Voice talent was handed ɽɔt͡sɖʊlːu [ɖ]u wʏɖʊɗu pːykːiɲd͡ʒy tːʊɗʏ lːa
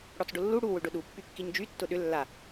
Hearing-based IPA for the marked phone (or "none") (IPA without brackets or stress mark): ɽ